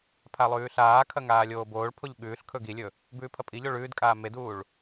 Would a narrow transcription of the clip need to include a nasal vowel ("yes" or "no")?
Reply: no